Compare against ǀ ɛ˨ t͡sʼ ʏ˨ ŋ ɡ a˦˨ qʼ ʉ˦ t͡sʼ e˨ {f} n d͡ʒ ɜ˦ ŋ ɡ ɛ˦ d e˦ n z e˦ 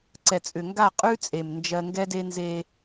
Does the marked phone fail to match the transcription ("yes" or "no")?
yes